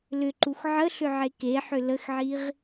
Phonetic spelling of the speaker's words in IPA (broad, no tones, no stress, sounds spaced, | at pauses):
l ʏ ǃ u x ʕ ə ɬ ʏ ʕ e k e ħ ʏ l ə x ʕ i ʁ